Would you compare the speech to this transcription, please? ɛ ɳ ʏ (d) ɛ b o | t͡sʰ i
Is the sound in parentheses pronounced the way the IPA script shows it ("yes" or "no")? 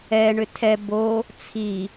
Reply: no